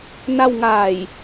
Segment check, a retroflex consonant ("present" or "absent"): absent